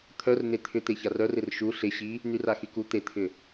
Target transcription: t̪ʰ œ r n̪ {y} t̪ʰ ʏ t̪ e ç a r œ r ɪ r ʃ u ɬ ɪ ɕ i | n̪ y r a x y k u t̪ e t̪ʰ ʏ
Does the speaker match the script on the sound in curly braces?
no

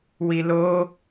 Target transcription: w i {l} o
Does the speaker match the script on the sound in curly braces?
yes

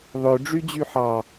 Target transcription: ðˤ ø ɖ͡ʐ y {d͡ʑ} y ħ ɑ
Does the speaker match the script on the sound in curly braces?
yes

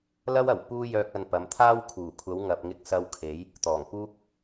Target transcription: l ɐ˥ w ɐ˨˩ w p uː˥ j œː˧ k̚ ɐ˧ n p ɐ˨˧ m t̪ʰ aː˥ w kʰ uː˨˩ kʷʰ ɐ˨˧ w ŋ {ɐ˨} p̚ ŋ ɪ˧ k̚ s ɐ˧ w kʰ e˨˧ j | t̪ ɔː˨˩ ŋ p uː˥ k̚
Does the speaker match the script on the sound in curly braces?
yes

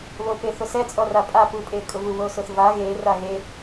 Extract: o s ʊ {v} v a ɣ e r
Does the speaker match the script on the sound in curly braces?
no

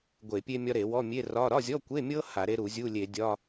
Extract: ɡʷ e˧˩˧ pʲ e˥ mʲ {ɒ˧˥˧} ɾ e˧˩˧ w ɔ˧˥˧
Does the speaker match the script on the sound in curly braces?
no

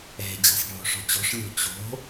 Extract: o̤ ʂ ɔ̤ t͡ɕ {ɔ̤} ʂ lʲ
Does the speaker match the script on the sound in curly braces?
yes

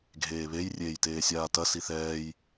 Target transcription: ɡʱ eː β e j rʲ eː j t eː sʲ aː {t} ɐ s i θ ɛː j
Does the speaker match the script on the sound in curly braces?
yes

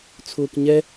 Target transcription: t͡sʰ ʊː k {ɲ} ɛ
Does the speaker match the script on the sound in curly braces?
yes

